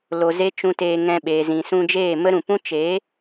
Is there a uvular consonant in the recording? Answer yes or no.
no